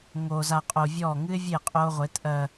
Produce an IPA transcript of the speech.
ŋ o˨ z a˨ qʼ o˨ vʲ ɔ˦˨ ŋ ɨ˦ ɪ̯ vʲ e˦˨ qʼ o˦ ʁʷ e˨˦ t ʔ ɜ˨

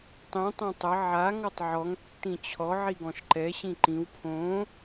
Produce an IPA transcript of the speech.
tˤ ĩ tˤ ɛ̃ tˤ ə ʕ a ŋ ɔ tˤ ʕ ɔ ŋ tː ĩ t͡ɕʰ ɔ ʕ i ɡ ɔ̃ ʃ ǃ ɛ ɕ ĩ ǃ ĩ w pʰ õ

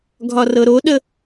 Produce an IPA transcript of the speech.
ɡʱ ɒ r ɤ ɾ o ɗ ə

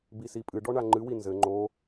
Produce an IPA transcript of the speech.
b i s i pʼ ɨ ɖ ɔ ɳ a ŋ͡ǃ ɨ w i n z ɘ ŋ͡ǃ o

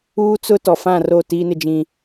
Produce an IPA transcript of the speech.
uː˦ t͡s ʊ˦ t ɔ˨ f ã˦˨ r o˦˨ t iː˦ n ɪ˦ d͡ʒ ĩ˦

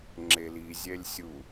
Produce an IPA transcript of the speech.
ŋ͡ǁ e l i zʲ ɛ lʲ sʲ u

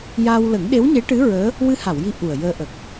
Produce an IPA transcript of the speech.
j a˧ w l ə˨˩˦ ŋ ɗ e˧˥ w ɲ e˧˥ ʈ ɨ˧˥ ɹ əː˧˥ | w ɨ˧ h a˨˩˨ w j i˧˥ ʔ u˨˩ ə̯ j əː˧ ʔ ə˨˩ k̚

